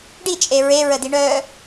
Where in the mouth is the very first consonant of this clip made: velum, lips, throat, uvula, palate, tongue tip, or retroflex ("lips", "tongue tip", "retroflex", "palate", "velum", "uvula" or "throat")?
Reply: retroflex